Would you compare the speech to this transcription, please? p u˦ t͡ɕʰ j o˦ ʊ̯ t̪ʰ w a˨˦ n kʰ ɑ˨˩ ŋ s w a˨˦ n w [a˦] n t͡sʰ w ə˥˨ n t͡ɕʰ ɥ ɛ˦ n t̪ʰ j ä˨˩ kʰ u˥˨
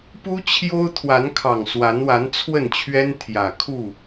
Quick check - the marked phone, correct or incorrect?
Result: incorrect: a˨˦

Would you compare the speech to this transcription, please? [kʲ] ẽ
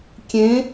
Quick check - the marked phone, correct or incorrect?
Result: correct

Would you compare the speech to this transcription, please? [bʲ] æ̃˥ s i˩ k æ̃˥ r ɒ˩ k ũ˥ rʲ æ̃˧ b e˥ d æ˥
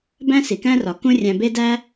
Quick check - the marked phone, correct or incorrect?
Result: incorrect: b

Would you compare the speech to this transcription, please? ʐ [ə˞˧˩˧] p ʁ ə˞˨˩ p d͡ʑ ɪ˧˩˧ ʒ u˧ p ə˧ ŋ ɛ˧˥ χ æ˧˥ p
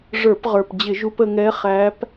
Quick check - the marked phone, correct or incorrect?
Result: correct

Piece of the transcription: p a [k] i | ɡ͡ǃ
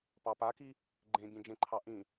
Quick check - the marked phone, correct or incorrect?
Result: correct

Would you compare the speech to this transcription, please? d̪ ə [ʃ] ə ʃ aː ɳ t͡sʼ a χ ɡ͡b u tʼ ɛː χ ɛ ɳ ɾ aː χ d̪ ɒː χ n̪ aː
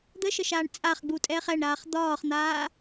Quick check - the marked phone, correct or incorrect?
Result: correct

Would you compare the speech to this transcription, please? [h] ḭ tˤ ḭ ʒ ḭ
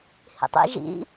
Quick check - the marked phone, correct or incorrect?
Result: correct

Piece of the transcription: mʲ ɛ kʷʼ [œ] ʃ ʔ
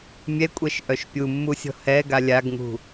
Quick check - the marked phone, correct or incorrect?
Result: incorrect: ɛ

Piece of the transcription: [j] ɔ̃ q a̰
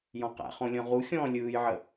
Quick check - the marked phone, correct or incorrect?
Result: correct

